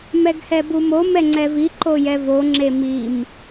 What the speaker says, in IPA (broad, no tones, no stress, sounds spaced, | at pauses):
m ɛ ɡ h ɛ b u m o m ɛ ŋ͡ǀ ɛ v i ǃ o j ɛ v o ŋ͡ǁ e m i m